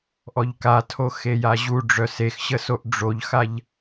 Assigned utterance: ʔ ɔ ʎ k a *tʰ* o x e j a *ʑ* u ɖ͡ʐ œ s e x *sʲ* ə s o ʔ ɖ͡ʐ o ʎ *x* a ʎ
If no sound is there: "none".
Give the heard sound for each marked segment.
tʰ, ʑ, ɕ, x

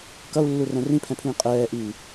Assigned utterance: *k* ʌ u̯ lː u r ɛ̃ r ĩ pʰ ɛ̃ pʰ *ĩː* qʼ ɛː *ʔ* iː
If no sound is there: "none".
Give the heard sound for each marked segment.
k, ĩː, ʔ

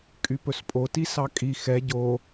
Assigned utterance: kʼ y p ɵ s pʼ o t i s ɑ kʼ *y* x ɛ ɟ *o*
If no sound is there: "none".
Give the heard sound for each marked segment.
i, o

